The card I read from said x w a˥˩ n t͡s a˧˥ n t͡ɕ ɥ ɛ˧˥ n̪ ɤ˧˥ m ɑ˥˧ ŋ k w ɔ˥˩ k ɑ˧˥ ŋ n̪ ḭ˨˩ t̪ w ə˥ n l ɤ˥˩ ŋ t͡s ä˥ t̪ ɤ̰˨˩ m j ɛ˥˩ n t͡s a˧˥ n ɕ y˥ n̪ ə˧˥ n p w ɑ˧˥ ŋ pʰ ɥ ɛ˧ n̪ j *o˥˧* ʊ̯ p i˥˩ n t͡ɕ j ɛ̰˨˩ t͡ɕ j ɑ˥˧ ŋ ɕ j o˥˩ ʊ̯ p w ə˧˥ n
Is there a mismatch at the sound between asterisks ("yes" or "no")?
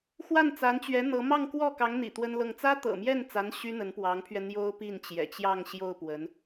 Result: yes